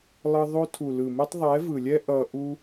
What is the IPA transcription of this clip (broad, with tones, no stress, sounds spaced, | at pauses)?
lˠ ɯ˧ ðˤ o˧ tʰ u˨ l ɯ˨ m ɯ˧ tˤ ðˤ ɛ˨˦ v ɯ˨ lʲ ɛ˦ ʔ ʌ˧ ʔ u˦